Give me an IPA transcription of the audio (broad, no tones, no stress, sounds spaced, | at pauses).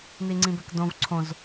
n i ŋ͡ǀ ĩ b ɛ k d õ v ǀʰ õ z